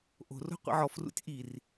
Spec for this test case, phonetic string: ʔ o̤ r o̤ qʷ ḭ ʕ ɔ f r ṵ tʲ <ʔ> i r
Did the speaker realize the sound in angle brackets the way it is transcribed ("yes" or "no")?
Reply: yes